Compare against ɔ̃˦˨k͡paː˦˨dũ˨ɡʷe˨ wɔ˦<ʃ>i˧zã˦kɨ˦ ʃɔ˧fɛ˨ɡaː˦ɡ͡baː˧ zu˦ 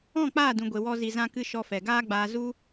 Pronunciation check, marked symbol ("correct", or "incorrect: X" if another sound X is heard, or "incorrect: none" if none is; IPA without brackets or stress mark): incorrect: z